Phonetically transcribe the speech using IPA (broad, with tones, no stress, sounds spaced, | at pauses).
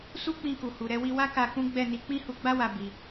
s u˦ k͡p ĩ˧ k u˨ h u˨ ɾ ɛ˧ w i˧ w a˦ k a˧ k ũ˦ ɡ͡b ɛ˦˨ n i˧ k͡p ĩ˦ h u˧ ɡ͡b a˦ w a˧ b i˧